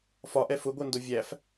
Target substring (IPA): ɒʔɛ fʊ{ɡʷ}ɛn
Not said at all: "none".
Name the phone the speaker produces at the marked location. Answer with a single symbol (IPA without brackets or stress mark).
ɡʷ